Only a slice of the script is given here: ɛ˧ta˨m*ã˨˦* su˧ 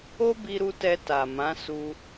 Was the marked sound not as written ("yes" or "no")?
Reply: no